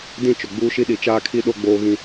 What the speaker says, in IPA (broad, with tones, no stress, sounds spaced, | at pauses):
d ĩ˦˨ t͡ʃ ʊ˨ ɡ͡b uː˦ ʃ i˦ ɗ i˨˦ t͡ʃ aː˦ kʰ i˦ ɗ o˦ ɡ͡b oː˦ ɣ ĩ˦